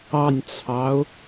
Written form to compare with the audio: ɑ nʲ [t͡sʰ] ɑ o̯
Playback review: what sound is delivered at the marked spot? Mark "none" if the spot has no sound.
t͡sʰ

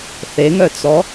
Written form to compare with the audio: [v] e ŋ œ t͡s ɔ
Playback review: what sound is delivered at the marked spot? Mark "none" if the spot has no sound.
θ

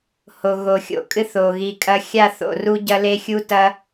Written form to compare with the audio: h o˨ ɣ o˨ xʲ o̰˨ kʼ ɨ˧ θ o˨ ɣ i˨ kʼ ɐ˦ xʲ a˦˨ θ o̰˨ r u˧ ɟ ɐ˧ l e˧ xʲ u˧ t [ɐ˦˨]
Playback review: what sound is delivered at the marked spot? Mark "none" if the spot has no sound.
ɐ˧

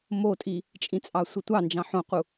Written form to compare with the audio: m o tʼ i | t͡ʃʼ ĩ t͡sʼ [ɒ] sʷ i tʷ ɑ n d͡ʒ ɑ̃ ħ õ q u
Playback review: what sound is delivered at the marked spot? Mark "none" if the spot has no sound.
ɑ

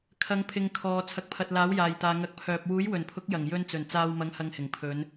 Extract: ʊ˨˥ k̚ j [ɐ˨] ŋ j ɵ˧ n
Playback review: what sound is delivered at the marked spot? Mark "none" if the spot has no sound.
ɐ˨˩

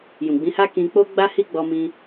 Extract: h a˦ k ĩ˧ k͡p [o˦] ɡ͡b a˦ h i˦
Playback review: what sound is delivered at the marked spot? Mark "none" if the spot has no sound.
o˦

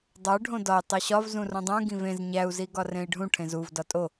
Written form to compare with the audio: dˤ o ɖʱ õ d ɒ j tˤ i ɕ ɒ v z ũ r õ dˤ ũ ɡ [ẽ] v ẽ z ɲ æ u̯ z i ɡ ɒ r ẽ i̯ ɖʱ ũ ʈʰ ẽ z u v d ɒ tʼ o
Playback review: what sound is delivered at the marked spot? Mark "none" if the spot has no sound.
ĩ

